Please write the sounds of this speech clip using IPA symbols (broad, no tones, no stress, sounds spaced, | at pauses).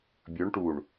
bʲ ɵ ɳ ʈ u ɳ